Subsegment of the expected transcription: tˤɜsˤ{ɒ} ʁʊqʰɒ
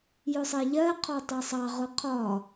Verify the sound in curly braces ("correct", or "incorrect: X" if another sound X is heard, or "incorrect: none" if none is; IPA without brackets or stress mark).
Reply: incorrect: ɑ